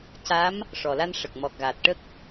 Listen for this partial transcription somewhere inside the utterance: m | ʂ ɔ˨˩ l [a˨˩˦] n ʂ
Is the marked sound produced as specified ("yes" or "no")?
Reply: no